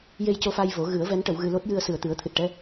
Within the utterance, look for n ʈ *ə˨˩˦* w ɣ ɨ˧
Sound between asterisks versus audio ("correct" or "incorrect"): correct